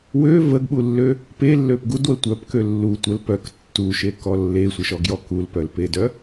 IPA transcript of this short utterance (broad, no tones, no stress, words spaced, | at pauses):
wø vəɡɓulːø | pelːøp ɡudwə tʷœpkø lːu tʷəl pœk tːuʃekɔ lːesʷəʃɔɡjɔ kulpœlpedœ